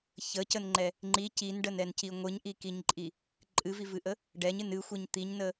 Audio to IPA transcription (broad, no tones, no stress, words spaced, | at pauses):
çəcənŋ͡ǃɛ | ŋ͡ǃi cinɖənɛnci ŋʷɨɲʔikiɲǃʼi | ǃʼɨvivɨʔə | ɖɛɲɨn ɨxʷiɲ t̪iɲnə